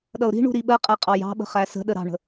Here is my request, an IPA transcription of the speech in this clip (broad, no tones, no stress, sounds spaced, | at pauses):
ɗ ʌ ʊ̯ ɾ i̤ ɳ ṳ ɾ i ɓ ɜ qʼ æ qʼ ɑ j ɑ̤ ɓ ə̤ χ æ s ə̤ ɗ ə ɾ ɑ̤ ɳ ə̤